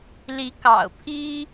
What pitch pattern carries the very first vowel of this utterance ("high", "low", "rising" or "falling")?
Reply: rising